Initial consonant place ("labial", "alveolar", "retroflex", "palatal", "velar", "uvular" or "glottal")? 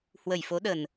glottal